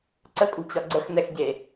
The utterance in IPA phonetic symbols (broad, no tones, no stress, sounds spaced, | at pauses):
ǀ ə kʼ ṳ t͡ɕ ɒ ɡ͡ǀ ə x n ɛ x ɟ e